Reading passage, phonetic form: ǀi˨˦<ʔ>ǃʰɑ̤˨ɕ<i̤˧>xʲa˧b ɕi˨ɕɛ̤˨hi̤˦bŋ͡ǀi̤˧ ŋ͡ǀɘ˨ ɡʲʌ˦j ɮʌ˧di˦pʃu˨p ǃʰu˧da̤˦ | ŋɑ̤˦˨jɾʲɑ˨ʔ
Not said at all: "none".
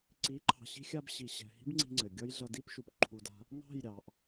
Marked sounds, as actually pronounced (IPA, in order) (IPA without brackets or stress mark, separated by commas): none, i̤˧